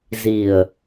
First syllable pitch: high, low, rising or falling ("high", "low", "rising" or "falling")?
low